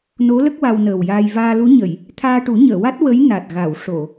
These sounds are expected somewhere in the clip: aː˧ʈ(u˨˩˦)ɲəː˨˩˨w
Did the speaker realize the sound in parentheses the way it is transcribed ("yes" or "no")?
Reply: yes